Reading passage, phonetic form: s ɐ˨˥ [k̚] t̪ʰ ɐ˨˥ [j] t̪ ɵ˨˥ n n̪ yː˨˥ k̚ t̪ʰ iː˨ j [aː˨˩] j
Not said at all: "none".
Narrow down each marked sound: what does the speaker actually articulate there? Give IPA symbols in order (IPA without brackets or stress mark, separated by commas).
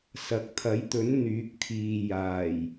k̚, j, aː˨˩